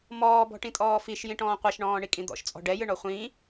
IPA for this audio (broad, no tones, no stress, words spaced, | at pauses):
mɔːbɔ̤ʈĩ tʼɔːfiʃjĩʈɔ̃ː qʷɛʃɳɔ̃ːɳikʼĩ d̪ɔ̰ʃt͡sʼɔ̤ ɖɛjɨɳɔ χʷĩ